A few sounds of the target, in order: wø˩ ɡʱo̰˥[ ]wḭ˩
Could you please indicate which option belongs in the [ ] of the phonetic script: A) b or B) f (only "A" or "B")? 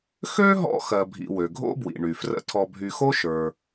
A